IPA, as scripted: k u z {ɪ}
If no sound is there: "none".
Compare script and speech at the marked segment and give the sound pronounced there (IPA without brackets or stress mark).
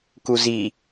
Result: i